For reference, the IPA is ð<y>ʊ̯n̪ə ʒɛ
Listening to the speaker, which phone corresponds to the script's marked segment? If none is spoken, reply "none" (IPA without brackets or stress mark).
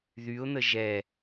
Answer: y